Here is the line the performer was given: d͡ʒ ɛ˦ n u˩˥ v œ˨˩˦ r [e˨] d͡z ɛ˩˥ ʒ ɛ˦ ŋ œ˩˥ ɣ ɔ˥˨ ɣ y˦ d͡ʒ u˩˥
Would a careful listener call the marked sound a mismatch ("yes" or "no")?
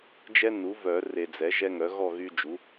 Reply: no